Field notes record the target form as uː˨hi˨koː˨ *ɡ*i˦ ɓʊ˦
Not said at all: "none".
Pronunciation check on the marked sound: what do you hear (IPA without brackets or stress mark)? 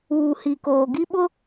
ɡ